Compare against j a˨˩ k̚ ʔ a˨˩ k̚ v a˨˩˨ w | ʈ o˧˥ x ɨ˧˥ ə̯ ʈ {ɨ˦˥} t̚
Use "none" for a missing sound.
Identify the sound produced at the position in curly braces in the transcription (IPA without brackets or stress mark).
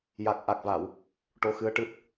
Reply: ɨ˦˥